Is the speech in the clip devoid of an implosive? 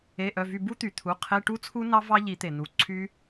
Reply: yes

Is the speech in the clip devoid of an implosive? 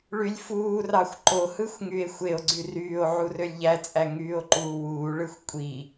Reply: yes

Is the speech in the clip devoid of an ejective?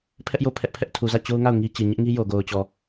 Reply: yes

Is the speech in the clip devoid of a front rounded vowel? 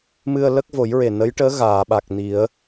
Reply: yes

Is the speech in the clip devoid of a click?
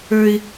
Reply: yes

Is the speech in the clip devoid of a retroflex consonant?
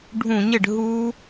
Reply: no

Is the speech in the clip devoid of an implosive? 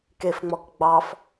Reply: yes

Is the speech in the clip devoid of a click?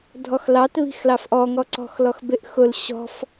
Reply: no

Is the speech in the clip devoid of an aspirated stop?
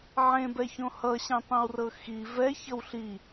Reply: yes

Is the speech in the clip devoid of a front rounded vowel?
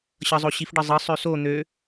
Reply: no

